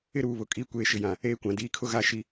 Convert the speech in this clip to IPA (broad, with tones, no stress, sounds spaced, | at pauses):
ɪ˦ ɾ uː˨ β ʊ˨ kʼ i˨˦ kʷ eː˨ ʃ ɪ˨ j ã˨ | eː˦ kʷ ã˨ d iː˨˦ kʰ ʊ˦ ɣ a˦˨ ʃ i˦